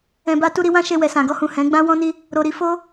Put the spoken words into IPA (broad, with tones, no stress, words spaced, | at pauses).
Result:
ɛ̃˨ba˧ tu˦ɾi˧wã˦ʃe˧ wɛ˨sã˨ɡɔ˧hũ˨ hɛ̃˨˦ ɡ͡bã˦wɔ̃˦ni˦ | ɾo˨ɾi˧ fo˦